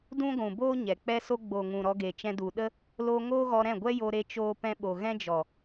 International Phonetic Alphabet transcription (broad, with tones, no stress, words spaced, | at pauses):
dũ˦ɡʷũ˨ boː˦ɲɛ˨ k͡pɛ˧so˧ɡ͡bo˨ŋũ˨ ɾɔ˧ɡe˨t͡ʃɛ̃˧ du˨ ɗə˦ | loː˧ ŋoː˦ɣɔ˧ɾɛ̃˦˨ ɡʷɛ˦jo˧ ɾe˧t͡ʃoː˧ pɛ̃˧ɓo˨ ɣɛ̃˦ d͡ʒɔ˨